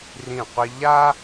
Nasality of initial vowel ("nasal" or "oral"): nasal